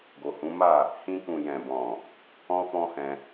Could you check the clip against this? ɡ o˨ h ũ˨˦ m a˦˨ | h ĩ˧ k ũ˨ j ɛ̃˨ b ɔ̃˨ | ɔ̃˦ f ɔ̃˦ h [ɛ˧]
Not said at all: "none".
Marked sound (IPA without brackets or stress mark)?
ɛ̃˧